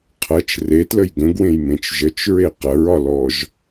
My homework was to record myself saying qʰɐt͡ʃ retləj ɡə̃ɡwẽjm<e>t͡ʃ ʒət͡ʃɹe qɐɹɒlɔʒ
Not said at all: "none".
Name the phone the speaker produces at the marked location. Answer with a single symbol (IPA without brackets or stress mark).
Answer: ẽ